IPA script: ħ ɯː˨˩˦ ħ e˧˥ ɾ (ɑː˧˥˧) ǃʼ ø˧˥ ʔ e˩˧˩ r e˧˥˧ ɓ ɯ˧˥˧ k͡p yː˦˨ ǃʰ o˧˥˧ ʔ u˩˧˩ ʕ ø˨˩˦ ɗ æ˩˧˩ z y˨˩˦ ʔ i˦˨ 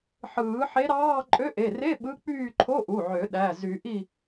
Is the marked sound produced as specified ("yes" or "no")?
yes